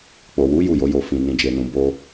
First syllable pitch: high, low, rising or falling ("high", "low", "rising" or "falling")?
low